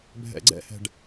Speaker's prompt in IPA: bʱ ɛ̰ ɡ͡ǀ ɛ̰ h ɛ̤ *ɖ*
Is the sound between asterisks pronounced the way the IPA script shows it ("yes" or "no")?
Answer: yes